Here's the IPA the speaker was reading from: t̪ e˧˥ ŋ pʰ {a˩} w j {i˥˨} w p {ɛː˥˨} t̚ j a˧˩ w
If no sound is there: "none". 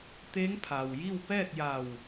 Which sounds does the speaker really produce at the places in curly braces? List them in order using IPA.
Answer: a˩, i˥˨, ɛː˥˨

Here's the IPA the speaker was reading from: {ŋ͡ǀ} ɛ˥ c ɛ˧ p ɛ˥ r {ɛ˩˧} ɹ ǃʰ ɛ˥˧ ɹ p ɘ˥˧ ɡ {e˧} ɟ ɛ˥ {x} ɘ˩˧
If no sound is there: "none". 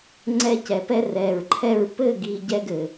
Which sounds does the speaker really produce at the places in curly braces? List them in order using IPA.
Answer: ŋ͡ǀ, ɛ˧˩, i˧, ɡ

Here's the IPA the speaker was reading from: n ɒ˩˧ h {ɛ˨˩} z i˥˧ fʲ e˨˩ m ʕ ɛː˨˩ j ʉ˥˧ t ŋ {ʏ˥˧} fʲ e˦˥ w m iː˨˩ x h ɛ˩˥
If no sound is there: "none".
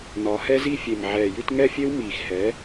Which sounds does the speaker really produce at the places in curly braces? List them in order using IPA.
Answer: ɛ˦˥, ɛ˥˧

